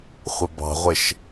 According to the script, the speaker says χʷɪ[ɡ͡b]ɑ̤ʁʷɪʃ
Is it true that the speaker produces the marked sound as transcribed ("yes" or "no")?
no